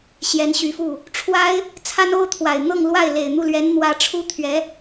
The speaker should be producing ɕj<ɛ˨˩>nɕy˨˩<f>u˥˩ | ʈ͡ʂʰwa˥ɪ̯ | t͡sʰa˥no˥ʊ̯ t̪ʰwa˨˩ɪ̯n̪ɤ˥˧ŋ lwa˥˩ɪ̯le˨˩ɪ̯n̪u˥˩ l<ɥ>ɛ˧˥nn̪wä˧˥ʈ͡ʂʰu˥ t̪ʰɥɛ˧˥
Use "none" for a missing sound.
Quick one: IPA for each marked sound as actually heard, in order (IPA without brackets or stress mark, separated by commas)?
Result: ɛ˧˥, f, ɥ